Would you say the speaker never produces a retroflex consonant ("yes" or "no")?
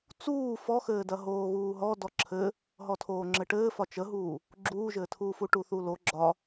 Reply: no